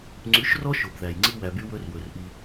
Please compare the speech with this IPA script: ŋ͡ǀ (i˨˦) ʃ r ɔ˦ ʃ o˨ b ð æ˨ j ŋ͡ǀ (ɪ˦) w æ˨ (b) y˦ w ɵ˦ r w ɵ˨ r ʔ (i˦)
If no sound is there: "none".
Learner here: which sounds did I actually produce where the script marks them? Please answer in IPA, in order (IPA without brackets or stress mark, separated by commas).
y˨˦, i˦, b, i˦